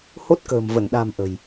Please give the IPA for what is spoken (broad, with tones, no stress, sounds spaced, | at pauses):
h o˦˥ t̚ k ə̤ː˨˩ m v ə˧˩ n ɗ a̤˨˩ m ʔ ə̤˨˩ j